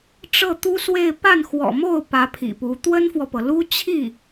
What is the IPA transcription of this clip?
ʈ͡ʂ ɤ˥˩ t̪ u˥ s w e˥˧ ɪ̯ p a˥˩ n x w ɔ̰˨˩ m o˥˩ ʊ̯ p ä˧˥ pʰ ḭ˨˩ p u˧˥ t̪ w ə˥ n f w ɔ˨ p ɤ˩ l u˥ t͡ɕʰ i˥˩

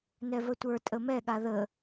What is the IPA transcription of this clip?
n ɛ v ə tʷ ə˞ tʼ ə m ɛ ɠ a ð ə

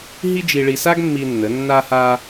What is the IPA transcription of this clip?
ɦ i˥ d͡ʒ i˧ ɭ i˧ s a˥ ɡ mː i˧ nː ə˩˧ nː a˧ h a˧

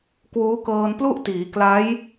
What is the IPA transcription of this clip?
k w uː˦˥ k ɤː˧ n p l u˥˩ ʔ t iː˩˦ k l a˦˥ j

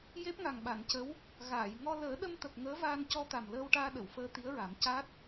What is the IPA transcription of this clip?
j e˦˥ p̚ ŋ a˨˩ ŋ ɓ a˨˩˨ n c ə˧˥ w | ɣ aː˨˩˨ j ŋ ɔ˧ l əː˨˩˦ ɗ ə˧ m t̪ ə˨˩ k̚ ŋ əː˧˥ v aː˧ n c ɔ˧ t̪ a˨˩ m l əː˧ w ʈ aː˧ ɗ ə˨˩˨ w f əː˧ t̪ i˧˥ ə̯ ɹ a˨˩˦ m c a˦˥ t̚

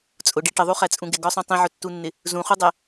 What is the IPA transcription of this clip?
t͡sʼ ʊ ɖ i ʈ ə ðˤ u χ æ t͡sʼ ũ ɡ ɪ ɡ ɒ sˤ ũ tˤ ĩ ʕ ʊ tː u nː ɪ | z ũ χ u dˤ æ

